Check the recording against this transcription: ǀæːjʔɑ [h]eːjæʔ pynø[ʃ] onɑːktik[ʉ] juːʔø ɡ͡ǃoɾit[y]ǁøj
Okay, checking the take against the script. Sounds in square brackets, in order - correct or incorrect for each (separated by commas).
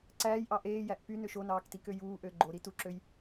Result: incorrect, correct, incorrect, incorrect